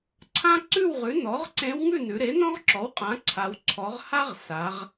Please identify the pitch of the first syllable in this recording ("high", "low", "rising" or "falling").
high